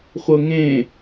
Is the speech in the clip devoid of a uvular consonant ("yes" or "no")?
no